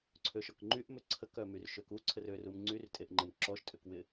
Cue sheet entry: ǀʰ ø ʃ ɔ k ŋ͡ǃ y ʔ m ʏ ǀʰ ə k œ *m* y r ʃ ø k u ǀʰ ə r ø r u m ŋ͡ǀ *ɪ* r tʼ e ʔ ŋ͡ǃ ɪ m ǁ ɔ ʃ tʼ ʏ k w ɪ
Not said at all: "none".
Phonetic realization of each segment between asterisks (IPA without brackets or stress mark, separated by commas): m, y